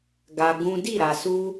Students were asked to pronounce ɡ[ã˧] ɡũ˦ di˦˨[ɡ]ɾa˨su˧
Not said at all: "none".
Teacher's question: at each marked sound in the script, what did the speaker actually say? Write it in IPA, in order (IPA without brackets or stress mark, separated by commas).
a˧, none